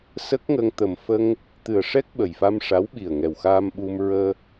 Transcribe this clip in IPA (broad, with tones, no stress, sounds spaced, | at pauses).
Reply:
s ə˦˥ k̚ ŋ ə˧ ŋ t̪ ə˨˩ m f ə˧ ŋ | t̪ ɨ˨˩ ə̯ ʂ ɛ˦˥ k̚ ɓ ə˨˩ j f a˧ m ʂ a˧˥ w ɓ i˨˩ ə̯ ŋ ɛ˨˩ w x aː˧ m ɓ u˧ m ɹ əː˧